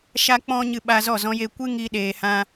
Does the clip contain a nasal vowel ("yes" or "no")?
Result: yes